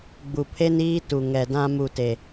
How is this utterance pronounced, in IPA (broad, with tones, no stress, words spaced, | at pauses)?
ɡ͡bu˨pʰe˦niː˦tu˨ ŋɛ˨dã˦ mu˦te˦